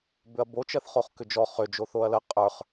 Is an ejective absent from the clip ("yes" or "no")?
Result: no